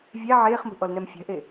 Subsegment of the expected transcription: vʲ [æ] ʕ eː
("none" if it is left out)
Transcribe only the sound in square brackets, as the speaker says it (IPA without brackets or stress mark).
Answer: æ